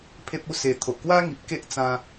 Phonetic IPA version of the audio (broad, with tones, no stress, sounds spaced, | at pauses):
pʰ e˦ p̚ u˦ s e˧ t̪ʰ o˨ ʔ k w a˦ ŋ i˨ p̚ k e˦ ʔ t͡s ã˧